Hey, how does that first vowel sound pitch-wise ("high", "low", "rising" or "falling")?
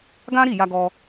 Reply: high